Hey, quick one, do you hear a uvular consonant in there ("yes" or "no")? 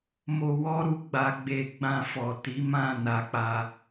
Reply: no